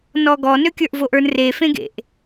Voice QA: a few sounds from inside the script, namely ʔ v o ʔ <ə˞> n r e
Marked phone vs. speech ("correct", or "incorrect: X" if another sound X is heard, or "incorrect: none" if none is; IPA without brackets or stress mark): correct